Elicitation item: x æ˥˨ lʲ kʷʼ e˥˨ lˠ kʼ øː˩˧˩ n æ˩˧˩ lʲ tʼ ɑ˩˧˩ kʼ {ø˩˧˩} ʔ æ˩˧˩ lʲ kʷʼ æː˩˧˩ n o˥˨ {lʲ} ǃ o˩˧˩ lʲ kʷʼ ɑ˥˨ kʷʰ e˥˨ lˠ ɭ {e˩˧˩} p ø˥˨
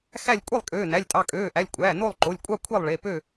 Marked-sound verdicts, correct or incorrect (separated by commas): incorrect, incorrect, correct